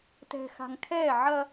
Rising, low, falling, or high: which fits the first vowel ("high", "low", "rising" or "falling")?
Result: low